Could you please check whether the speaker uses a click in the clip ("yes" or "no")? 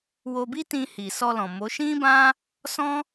no